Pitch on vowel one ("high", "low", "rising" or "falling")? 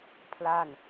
falling